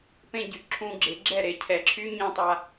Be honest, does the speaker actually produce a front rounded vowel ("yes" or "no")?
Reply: yes